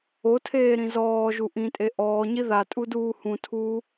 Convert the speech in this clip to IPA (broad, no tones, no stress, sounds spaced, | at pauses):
o tʰ eː ɾ ĩ z ɔː ʒ u ʔ ĩ tʼ e ʔ ɔː ɲ i ð a tʼ u d uː h ũ tʰ uː